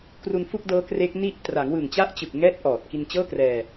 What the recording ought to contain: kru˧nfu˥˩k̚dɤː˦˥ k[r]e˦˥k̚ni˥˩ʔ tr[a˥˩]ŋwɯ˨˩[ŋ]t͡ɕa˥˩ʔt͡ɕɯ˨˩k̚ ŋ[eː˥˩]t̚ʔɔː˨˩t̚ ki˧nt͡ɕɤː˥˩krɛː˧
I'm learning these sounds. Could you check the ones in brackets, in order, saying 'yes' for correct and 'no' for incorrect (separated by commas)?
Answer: yes, no, yes, no